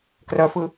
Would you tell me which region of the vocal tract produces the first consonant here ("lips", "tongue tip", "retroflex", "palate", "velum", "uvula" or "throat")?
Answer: velum